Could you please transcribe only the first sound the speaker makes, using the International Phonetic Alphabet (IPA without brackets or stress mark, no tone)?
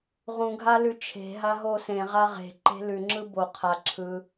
ʁ